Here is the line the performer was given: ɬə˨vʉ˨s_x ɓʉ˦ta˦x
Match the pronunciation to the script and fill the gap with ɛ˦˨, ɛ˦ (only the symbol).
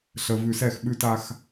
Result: ɛ˦˨